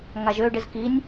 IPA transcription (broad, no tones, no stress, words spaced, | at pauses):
ŋaʒø ɖɪzkinʲ